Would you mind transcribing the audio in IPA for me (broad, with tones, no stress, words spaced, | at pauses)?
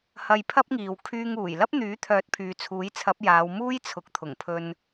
hɐ˧jpʰɐ˥p̚ŋiː˨w kʰyː˧ŋuː˨˩j lɐ˥p̚n̪yː˨˥t̪ʰœː˨˥t̚pʰyː˨ t͡sʰuː˨˥jt͡sʰɐ˨˥p̚ jaː˨˧w muː˥jt͡sʰʊ˨k̚t̪ʰʊ˨˩ŋ pʰɵ˧n